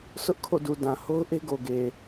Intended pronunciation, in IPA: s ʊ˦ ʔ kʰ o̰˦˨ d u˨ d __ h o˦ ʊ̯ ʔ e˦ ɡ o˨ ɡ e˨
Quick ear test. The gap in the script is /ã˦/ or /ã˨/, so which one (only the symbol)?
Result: ã˨